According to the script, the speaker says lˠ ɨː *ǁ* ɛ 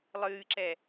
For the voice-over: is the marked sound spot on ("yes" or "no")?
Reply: yes